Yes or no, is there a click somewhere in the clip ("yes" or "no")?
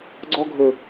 yes